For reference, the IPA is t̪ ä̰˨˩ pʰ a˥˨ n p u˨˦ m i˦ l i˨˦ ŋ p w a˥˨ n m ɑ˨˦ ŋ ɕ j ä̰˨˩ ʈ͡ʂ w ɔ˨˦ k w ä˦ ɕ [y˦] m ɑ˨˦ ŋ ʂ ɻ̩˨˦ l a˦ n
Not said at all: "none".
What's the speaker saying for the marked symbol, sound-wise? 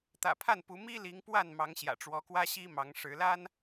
i˦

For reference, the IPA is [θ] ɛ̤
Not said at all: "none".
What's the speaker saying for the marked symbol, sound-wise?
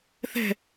θ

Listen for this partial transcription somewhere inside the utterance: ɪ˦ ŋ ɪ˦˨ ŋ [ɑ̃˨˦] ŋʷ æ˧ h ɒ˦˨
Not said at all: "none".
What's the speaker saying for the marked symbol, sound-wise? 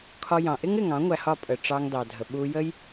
ɑ̃˨˦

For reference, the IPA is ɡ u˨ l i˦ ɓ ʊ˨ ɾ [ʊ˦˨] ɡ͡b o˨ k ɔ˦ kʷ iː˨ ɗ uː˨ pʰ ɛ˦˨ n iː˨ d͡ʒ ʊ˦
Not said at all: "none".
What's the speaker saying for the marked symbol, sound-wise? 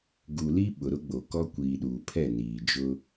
ʊ˦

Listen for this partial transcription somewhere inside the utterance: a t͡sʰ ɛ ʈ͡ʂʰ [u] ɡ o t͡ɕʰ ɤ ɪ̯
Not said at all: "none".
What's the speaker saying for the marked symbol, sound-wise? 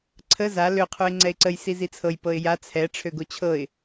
ø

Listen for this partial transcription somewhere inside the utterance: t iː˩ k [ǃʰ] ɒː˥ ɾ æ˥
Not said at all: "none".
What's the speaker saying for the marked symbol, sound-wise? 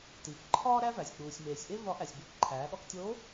ǃʰ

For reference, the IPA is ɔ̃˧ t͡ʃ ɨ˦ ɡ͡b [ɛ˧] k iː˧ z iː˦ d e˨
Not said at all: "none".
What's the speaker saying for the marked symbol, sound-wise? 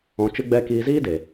ɛ˦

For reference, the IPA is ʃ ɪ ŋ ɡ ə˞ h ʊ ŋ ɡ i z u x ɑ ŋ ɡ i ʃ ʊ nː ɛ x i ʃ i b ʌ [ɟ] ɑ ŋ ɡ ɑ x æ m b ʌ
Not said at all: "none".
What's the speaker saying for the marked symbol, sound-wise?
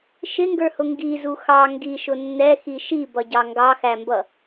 ɟ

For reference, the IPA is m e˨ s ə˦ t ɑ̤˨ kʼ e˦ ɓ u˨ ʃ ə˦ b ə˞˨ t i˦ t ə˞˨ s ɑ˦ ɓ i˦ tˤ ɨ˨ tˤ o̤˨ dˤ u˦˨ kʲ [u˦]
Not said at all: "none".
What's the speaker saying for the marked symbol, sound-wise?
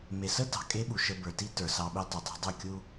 u˦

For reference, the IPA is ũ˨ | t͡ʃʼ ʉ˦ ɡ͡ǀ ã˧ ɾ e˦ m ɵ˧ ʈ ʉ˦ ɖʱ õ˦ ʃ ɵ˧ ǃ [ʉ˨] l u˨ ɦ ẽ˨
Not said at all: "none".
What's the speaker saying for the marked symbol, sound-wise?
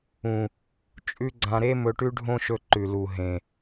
ʉ˨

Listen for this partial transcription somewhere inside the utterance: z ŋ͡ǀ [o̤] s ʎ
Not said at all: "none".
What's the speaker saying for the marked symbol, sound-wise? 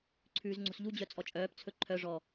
o̤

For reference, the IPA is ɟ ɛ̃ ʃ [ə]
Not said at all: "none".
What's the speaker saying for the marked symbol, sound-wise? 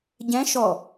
ɔ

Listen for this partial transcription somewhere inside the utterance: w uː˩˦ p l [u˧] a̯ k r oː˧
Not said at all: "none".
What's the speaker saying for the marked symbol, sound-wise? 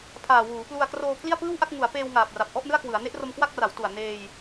u˧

